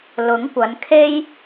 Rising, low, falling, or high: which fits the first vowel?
rising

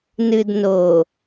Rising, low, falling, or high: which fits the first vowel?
low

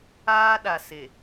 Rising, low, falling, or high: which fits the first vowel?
high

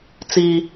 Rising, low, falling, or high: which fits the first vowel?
low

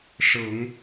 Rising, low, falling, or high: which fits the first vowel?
rising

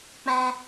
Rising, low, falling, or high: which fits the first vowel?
high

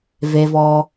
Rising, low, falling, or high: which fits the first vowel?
low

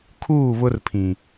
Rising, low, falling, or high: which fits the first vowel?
falling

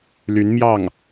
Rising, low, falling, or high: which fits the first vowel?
rising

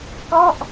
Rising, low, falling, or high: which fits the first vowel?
falling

